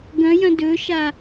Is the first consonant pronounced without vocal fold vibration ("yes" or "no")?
no